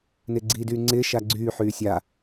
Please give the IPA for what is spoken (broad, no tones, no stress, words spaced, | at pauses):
nɪːɡ͡ǀiːdyːŋ͡ǀɪː ʃaɡ͡ǀyː ħyːsʲa